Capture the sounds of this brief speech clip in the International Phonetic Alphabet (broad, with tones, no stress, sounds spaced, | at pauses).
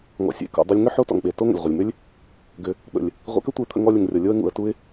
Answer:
ŋ ɔ̰˨ sʲ ḛ˨ k ṵ˨ dˤ u˧ lʲ ŋ ʏ˦ ħ o˦ t ɔ̰˨ ŋ ɓ e˨ t o˦ ŋ ə̰˨ lʲ ʁʷ ə˨ lʲ m ʏ˦ lʲ | ɡ ʏ˧ | ɓ ə̰˨ lʲ | ʁʷ ḛ˧ k ə˦ tʷ ə˧ ɪ̯ t̪ʰ ə̰˧ ŋ ɔ˧ lʲ ə˨ ŋ rʲ ɔ˨ lʲ o˧ ə̯ ŋ ṵ˨ ə̯ t u˧ ɪ̯